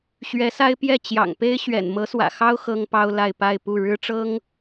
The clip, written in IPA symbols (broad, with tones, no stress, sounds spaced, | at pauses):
ɕ ɥ ɛ˧˥ s a˥ ɪ̯ p j ɛ˥˩ t͡ɕ j ɑ̰˨˩ ŋ p e˥ ɪ̯ ɕ ɥ ɛ̰˨˩ n m ɤ˧˥ s w ä̰˨˩ x ɑ˥ ʊ̯ x ɤ˥ ŋ p ɑ˥ ʊ̯ l a˥˧ ɪ̯ p a˥˧ ɪ̯ p u˥˩ ɻ ɻ̩˥ ʈ͡ʂ ɤ˥ ŋ